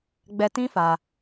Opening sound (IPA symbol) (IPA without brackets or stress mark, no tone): ɡ͡b